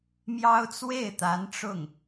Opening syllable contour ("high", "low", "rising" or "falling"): high